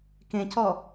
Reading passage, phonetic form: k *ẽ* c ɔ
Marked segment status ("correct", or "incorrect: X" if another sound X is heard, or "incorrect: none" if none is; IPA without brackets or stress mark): correct